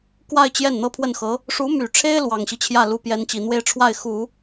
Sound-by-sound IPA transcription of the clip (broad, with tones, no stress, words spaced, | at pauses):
kwa˥˧ɪ̯ t͡ɕjɛ˥˩n n̪ɤ˥pʰwə˥˩nxɤ˧˥ | ʂu˧˥my˨˩ʈ͡ʂʰe˥ɪ̯ lwɑ˨˩ŋɕi˦t͡ɕʰjä˥˩ lu˧˥pjɛ˧˥nt͡ɕi˨˩n̪we˥˧ɪ̯ ʈ͡ʂʰwa˥˩ɪ̯ xu˨˩˦